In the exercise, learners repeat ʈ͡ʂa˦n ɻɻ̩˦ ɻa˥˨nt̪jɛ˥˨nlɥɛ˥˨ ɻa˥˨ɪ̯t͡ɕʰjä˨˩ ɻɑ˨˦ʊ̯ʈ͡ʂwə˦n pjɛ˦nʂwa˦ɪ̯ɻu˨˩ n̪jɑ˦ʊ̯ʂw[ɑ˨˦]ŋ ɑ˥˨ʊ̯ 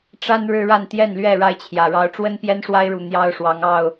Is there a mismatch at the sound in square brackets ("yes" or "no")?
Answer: no